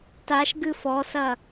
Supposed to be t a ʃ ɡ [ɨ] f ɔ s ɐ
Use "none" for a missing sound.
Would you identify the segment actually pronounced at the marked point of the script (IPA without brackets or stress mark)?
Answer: ɨ